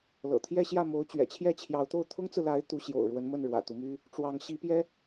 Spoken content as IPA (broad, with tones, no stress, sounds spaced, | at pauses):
l ɤ̰˨˩ t̪ʰ j ɛ˥˧ ɕ j ä˥˩ m o˧˥ ʊ̯ t͡ɕ ɥ ɛ̰˨˩ t͡ɕʰ j ɛ˥˩ t͡ɕʰ j ɑ˧˥ ʊ̯ t̪ o˥˩ ʊ̯ t̪ʰ ʊ˥ ŋ t͡s ɹ̩˨ l a˧˥ ɪ̯ t̪ u˧˥ ɕ j o̰˨˩ ʊ̯ ɻ w ə˧˥ n m ə˥˩ n ɻ w ä̰˨˩ t̪ u˦ m y˥ | ʈ͡ʂ w ɑ˧˥ ŋ ɕ i˧˥ p j ɛ˥